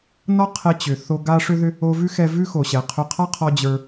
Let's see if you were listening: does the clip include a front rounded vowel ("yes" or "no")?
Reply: yes